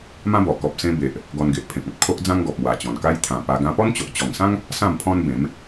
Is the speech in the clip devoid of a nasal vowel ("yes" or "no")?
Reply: no